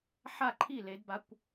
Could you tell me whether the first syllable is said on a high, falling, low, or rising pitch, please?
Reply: falling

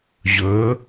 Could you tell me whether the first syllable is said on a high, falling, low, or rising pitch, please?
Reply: rising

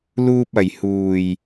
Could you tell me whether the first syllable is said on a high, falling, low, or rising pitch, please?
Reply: low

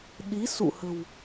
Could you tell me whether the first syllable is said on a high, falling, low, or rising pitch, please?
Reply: rising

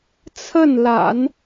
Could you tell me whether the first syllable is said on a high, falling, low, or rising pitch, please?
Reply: falling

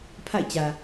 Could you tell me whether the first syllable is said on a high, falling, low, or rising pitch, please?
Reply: falling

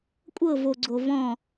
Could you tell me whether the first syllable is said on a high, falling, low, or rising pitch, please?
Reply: falling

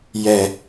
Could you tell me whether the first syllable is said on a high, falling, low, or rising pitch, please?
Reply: low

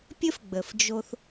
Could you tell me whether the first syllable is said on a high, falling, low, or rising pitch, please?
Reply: high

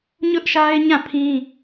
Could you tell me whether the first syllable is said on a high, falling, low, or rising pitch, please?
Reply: high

